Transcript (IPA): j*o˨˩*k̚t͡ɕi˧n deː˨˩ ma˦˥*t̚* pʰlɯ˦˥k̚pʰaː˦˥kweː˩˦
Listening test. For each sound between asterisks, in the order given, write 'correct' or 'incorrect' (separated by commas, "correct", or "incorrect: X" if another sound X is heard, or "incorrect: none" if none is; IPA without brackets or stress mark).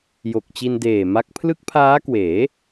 correct, incorrect: k̚